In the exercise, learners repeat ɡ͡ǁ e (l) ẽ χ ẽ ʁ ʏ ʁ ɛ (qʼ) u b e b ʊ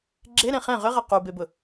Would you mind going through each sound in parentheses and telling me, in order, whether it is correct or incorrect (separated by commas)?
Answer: incorrect, incorrect